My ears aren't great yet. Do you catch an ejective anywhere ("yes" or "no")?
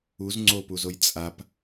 yes